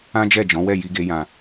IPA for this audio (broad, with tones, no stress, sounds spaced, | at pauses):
ã˦ d͡ʒ ɛ˦˨ d͡ʒ ɔ̃˨˦ w ɛ˦˨ j i˨ ɡ e˨ j ã˨